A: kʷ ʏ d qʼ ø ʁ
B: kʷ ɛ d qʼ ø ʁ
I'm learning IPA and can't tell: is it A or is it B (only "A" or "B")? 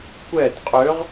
B